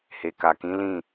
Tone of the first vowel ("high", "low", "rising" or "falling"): low